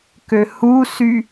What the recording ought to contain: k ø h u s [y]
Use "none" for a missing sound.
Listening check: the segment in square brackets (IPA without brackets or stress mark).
y